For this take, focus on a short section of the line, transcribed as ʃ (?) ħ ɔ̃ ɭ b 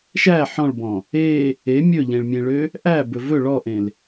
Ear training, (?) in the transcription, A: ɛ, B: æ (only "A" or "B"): B